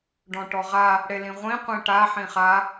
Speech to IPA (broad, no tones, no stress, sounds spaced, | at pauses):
ɖ ɔ̃ ʈ ɔ ʁ a | ɽ e l ĩ ʁʷ ĩ qʷ ĩ ʈ a ħ ĩ χ a